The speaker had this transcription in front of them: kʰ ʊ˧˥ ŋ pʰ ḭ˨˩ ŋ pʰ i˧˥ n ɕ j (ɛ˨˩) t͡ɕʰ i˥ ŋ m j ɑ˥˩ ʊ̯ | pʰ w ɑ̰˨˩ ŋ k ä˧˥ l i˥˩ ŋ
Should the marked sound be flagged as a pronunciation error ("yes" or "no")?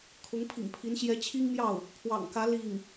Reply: yes